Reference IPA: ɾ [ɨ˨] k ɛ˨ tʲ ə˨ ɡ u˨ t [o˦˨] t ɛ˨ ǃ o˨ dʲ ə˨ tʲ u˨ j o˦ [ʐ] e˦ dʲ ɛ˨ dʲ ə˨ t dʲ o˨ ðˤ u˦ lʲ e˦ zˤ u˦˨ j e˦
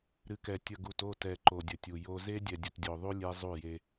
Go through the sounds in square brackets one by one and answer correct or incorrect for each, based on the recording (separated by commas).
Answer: correct, correct, incorrect